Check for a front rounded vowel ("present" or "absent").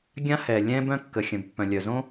present